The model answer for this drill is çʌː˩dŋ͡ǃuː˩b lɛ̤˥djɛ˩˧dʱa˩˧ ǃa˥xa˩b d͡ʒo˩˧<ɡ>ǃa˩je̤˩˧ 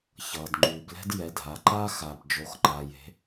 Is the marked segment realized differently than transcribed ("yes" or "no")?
yes